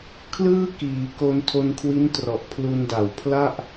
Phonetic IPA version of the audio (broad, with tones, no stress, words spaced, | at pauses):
kʰlɯː˥˩ kiː˩˦ ko˧ntʰo˧nkʰwi˦˥n trɔ˨˩ʔ pʰlu˧nda˨˩w pʰla˥˩ʔ